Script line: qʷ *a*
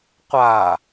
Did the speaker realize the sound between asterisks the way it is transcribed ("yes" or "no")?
yes